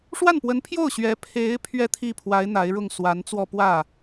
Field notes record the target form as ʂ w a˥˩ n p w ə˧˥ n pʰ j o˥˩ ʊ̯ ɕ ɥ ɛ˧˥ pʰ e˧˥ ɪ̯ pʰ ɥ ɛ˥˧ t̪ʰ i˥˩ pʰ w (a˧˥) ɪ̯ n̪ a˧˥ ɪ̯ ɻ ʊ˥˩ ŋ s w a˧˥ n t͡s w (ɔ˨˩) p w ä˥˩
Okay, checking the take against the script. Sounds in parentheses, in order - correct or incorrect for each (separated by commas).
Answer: correct, incorrect